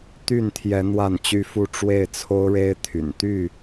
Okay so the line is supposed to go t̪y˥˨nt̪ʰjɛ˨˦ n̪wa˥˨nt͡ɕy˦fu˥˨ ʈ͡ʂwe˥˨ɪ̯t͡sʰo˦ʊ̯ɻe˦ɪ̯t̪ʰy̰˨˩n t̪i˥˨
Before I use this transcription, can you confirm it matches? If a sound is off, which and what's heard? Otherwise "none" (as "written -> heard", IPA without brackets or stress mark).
i˥˨ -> y˥˨